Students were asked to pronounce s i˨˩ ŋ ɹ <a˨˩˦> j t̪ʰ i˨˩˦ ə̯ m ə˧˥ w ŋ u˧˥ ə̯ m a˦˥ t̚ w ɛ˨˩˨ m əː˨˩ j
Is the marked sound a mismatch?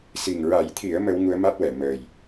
no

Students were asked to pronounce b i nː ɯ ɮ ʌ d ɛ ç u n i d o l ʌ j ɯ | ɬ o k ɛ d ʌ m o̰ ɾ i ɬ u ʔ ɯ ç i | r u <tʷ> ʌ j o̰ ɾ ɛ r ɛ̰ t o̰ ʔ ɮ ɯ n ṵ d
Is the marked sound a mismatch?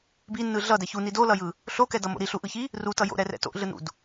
yes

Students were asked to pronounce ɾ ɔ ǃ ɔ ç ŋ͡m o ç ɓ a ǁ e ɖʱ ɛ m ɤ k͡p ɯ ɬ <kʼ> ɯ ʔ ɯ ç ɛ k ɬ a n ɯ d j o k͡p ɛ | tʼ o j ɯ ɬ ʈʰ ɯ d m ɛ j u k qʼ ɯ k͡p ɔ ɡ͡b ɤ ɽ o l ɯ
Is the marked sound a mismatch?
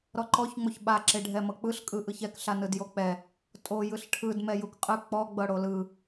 no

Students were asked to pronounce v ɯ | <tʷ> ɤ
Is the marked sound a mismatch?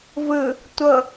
no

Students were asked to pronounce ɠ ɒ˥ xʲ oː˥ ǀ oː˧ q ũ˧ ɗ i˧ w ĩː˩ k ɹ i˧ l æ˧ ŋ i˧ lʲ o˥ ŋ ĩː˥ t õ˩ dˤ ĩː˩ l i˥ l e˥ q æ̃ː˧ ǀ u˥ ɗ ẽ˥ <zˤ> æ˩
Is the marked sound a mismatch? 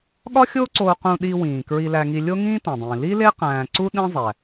no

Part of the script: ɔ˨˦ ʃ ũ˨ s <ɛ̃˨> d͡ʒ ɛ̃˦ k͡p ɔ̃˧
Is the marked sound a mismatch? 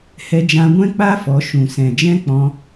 no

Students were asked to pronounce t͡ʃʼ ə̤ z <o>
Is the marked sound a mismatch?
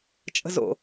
yes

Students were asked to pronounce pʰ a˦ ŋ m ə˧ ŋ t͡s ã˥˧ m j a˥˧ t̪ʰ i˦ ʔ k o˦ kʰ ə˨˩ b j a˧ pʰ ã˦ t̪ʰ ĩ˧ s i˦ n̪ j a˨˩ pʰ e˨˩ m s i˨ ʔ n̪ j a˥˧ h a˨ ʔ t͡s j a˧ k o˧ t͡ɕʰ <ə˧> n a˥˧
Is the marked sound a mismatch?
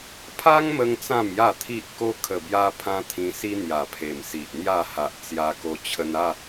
no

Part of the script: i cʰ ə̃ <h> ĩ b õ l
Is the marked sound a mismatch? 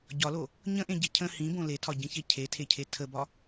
no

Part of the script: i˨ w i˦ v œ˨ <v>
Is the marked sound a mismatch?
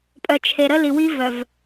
no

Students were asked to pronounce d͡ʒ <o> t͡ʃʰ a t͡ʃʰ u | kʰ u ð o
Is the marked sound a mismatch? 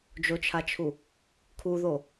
no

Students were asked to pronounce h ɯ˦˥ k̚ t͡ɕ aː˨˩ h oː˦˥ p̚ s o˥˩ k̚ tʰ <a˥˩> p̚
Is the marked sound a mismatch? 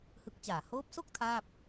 yes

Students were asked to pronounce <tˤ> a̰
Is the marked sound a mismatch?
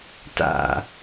yes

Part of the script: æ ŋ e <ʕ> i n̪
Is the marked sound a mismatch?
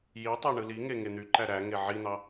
no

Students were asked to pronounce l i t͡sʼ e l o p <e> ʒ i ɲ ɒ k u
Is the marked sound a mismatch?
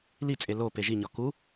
no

